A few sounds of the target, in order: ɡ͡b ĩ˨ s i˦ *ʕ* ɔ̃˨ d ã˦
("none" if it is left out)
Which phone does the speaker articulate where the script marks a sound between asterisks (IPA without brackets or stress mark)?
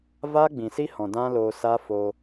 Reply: h